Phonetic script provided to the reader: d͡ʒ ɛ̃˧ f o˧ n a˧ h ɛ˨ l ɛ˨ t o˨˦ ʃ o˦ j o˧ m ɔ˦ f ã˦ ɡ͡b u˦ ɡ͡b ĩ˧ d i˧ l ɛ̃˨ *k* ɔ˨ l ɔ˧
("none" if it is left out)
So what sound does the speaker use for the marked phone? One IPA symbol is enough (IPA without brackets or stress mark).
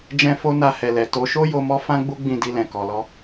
k